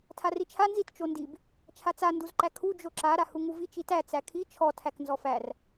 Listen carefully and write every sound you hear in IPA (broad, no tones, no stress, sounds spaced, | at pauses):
tʰ a r i t͡ʃʰ a n z i t t͡ʃ o n d i b | t͡ʃʰ a t͡s a n d u z ǃ æ kʰ u d͡ʒ o ǁ a ɾ a h u ŋ u v i t͡ʃ i t æ t͡s æ kʰ i t͡ʃʰ ɔ tʰ æ k n z ɔ f æ r